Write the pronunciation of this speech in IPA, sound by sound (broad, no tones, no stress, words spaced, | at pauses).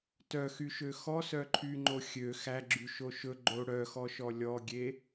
tœxyʃø xɔsœǃʰyŋ͡ǃo xʲø xæɡ͡ǁyʃo ʃɵ ɡ͡ǃo ɽœxɔʃɔ lʲɔɡʲe